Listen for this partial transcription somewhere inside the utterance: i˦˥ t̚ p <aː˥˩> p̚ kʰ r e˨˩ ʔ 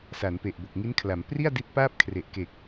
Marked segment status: correct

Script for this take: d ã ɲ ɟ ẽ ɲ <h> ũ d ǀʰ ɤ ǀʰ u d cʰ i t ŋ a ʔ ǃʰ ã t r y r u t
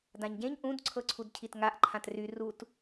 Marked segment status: incorrect: ʔ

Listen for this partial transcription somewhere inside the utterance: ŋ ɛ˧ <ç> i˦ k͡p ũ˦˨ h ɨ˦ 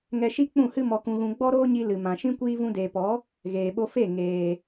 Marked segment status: incorrect: ʃ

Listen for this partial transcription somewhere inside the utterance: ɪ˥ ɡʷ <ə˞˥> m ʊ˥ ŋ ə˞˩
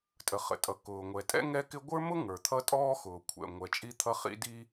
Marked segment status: correct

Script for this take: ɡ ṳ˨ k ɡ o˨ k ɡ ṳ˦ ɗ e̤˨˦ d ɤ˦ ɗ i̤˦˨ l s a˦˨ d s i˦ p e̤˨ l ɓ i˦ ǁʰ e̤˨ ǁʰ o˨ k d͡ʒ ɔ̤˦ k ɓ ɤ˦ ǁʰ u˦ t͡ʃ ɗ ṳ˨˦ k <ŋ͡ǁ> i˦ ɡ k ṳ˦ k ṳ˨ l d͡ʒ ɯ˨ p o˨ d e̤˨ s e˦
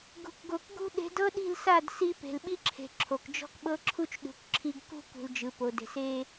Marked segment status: incorrect: ǁʰ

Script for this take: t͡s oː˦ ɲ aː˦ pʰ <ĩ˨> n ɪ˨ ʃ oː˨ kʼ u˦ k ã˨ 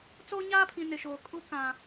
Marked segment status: correct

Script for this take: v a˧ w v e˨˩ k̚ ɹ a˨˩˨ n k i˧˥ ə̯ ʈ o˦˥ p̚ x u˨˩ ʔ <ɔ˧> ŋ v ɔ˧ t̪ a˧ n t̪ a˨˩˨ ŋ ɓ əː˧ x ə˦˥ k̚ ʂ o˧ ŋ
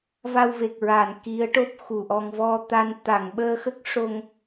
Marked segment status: correct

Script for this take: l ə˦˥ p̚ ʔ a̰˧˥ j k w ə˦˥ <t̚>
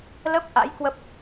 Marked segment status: incorrect: p̚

